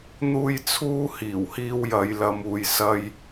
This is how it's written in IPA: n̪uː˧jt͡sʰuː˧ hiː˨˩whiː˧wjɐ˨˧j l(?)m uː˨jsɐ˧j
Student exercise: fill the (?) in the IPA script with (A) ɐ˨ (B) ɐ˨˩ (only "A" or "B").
A